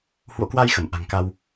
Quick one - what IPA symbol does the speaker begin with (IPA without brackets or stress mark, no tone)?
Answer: h